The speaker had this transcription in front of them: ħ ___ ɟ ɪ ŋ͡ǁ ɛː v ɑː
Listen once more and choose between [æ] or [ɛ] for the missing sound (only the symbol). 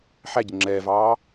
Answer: æ